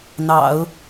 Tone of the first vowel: low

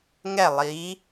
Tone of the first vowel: falling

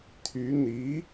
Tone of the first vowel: rising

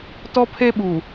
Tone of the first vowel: high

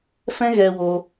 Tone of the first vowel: high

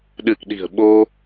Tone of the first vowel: low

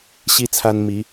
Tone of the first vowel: high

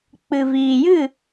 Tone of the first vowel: low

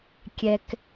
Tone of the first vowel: high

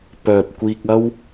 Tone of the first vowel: low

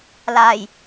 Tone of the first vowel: low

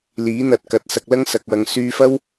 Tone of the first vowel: rising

